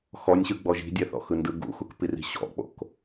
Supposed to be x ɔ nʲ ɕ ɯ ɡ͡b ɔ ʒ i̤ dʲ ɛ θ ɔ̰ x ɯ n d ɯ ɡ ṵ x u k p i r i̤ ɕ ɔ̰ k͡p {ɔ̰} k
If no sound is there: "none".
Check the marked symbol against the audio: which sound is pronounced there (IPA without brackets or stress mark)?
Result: o̰